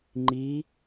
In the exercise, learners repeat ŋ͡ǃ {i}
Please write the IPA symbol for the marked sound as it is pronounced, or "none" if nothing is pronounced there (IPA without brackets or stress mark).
i